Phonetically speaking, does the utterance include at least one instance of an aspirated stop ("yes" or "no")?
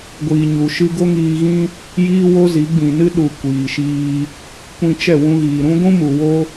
no